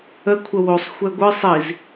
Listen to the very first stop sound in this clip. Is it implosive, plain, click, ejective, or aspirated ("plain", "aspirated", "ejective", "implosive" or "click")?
aspirated